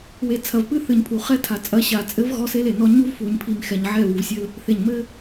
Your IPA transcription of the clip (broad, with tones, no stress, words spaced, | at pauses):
we˨t͡sʰɐ˨v pɨ˦θɨ˨ɲpʰu˨ χɛ˦tʰa˨ t͡sʼɐ˨˦ ɕa˨t͡sʼɘ˦v ɣɔ˦se˦le˨nɔ˦ ɲu˦vfu˨ɲpʰi˨m xɛ˨ɲʕɛ˦˨βu˨vsʲɘ˦l | θe˨ɲmɘ˦